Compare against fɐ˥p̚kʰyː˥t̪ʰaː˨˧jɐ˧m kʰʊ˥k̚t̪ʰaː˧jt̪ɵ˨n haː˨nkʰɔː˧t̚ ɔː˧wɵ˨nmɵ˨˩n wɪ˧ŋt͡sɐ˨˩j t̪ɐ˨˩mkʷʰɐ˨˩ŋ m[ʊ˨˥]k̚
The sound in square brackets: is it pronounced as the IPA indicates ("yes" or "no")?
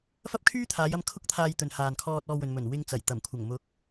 yes